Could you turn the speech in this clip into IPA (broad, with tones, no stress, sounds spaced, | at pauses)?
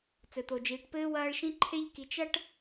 t͡s ɘ˩ t̪ o˩ d͡ʒ iː˩ ʈ p ɘː˥ w ɐː˦ ɭ ʃ ĩ˥ ǃʰ e˦ ʎ k i˨ t͡ʃ ɐ˥ ʈ